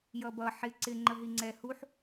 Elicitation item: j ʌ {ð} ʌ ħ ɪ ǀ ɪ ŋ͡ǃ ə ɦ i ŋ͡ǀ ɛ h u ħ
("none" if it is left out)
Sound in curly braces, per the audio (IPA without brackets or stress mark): b